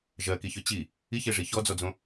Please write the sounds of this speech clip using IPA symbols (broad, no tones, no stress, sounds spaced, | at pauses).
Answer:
ʒ ɜ k i ç ø t͡ɕ i | i ç e ʐ i ç ɔ d͡z ɔ d͡z õ